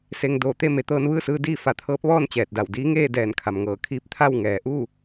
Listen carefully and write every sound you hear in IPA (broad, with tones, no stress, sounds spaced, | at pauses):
s e˧ ŋ d oː˧˩ t̪ e˥˨ m e˩˧ t̪ ɤː˧ n ʋ ɯː˥˨ s ɯː˧ d iː˥˨ f a˧˩ t̪ʰ ɤː˧˥ p̚ ʋ ɔː˥˨ n t͡ɕ ɛː˧˩ t̚ d a˧˩ w d iː˧˥ ŋ eː˥˨ d ɛː˧˩ n kʰ a˩ m ŋ ɤː˧˩ kʰ iː˧˥ p̚ t̪ʰ a˥˨ w ŋ ɛː˩ ʔ uː˥˨